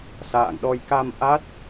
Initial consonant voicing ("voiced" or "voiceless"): voiceless